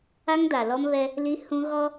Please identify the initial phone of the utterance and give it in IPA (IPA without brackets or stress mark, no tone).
a